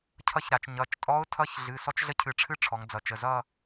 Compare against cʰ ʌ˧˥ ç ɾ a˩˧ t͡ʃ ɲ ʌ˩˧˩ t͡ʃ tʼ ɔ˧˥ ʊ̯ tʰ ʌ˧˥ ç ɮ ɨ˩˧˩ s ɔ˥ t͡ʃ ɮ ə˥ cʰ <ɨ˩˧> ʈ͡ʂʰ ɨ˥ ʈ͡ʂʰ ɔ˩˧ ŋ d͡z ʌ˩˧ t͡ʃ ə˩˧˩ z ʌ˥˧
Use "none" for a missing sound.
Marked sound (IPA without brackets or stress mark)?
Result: ɨ˧˩